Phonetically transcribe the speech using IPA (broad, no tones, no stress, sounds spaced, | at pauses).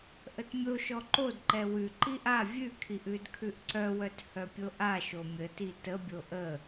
ʔ ə t mʲ o ʃ ɔ ǃ o d ǃ ɛ w ʉ ǃ i ʔ a vʲ ʉ kʰ i ʔ ʉ d kʰ ʉ ʔ ǀ œ w œ t h œ pʲ o ʔ a ʃ o mʲ ə t i t ə bʲ o ʔ ə